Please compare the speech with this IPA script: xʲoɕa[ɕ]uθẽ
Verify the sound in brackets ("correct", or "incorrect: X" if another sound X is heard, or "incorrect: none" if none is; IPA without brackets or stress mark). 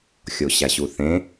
correct